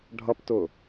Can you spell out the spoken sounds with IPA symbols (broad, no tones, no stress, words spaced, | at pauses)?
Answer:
ɖʱʌptʊ